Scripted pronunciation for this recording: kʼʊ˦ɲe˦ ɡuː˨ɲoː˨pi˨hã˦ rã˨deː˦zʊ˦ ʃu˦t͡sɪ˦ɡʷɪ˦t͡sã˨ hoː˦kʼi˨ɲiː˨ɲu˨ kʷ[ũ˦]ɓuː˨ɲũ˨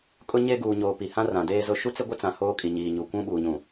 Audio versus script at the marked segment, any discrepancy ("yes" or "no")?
no